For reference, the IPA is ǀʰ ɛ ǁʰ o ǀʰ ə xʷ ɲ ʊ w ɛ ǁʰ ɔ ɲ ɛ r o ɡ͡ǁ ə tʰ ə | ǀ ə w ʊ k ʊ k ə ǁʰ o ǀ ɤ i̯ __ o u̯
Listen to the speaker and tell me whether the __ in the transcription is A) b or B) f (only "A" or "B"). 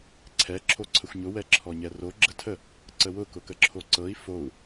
B